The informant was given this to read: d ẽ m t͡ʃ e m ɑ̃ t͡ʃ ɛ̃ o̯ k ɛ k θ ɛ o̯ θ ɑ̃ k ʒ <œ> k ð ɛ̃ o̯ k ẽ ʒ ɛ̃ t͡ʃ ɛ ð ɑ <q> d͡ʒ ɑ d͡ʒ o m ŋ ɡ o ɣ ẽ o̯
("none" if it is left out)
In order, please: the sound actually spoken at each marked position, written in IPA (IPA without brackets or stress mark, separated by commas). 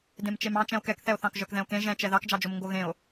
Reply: œ, k